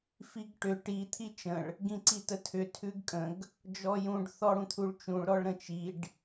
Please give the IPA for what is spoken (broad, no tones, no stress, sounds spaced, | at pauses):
f i ɡ ʈ ʏ ʈ i t̪ʰ i t͡ʃ ə̃ ɭ | ɡ ĩ ǀ i t ə tʰ ʏ tʰ ʉ ɡ kʼ ə̃ ɡ | d͡ʒ ɔ j ũ ɖ θ ɔ ɽ ũ t̪ʰ u ɭ t͡ʃ ũ ɭ ɾ ɔ ɭ ɾ ə̃ t͡ʃ i ɖ